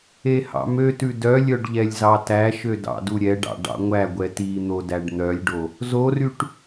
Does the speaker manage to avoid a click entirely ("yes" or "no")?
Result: yes